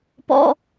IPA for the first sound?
p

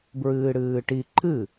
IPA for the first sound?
b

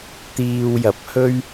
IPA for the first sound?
t̪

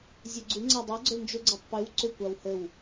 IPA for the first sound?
zʲ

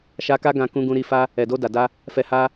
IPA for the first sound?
ʃ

